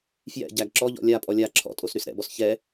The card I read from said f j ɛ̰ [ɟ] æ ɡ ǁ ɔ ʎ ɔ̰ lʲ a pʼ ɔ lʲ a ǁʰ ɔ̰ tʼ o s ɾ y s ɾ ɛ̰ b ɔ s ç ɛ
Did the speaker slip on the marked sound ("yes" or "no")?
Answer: no